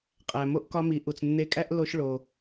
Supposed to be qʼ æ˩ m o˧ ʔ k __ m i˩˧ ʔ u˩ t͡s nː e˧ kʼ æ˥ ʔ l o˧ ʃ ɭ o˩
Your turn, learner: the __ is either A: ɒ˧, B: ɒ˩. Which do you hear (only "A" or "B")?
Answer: A